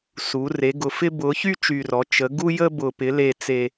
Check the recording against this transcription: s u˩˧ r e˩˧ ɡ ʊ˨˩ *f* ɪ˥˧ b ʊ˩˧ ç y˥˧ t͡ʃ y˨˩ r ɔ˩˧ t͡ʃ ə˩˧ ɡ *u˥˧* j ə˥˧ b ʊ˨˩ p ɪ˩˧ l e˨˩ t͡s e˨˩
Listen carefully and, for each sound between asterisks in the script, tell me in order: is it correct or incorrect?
correct, correct

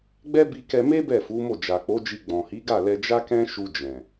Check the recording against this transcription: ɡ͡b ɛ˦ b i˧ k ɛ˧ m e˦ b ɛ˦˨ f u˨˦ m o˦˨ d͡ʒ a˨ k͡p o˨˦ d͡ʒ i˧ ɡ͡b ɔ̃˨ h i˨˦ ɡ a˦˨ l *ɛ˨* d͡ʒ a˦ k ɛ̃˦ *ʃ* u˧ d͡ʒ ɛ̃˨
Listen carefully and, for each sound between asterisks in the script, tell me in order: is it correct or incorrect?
incorrect, correct

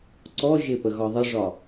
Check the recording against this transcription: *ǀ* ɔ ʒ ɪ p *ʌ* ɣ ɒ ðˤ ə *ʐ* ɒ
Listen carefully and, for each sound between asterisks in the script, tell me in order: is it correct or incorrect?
correct, incorrect, correct

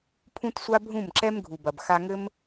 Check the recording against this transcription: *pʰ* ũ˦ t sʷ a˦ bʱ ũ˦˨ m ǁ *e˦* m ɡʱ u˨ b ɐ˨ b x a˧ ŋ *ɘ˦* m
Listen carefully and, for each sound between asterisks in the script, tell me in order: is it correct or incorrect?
correct, incorrect, correct

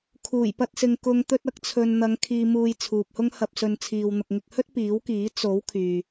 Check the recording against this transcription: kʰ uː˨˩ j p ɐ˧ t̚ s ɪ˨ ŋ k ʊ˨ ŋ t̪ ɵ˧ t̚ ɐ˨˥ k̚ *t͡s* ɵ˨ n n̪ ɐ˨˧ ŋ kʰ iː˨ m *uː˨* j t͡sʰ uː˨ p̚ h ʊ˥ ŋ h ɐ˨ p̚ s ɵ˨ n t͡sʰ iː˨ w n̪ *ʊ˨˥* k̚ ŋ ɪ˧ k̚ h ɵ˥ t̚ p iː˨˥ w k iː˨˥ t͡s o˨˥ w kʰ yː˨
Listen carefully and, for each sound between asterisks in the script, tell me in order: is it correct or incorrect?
incorrect, correct, incorrect

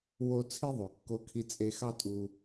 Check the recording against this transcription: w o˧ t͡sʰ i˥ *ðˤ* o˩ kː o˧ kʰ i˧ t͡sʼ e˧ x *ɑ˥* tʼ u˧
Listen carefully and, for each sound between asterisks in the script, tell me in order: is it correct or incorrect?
correct, correct

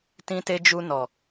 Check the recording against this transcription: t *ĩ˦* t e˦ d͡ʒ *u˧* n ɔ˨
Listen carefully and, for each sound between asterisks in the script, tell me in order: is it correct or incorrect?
correct, correct

